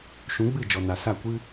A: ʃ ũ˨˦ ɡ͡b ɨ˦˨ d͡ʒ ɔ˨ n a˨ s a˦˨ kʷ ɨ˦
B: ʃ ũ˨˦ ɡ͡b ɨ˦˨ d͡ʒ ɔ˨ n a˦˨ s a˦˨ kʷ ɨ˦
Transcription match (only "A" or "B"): A